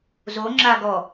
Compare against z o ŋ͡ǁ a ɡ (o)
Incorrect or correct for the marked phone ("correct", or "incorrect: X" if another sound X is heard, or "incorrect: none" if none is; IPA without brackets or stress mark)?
incorrect: ɔ